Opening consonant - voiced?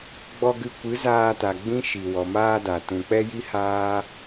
yes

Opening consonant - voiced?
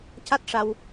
no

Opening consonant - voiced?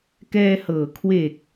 no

